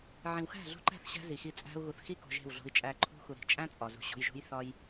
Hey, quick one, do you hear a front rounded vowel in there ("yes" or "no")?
no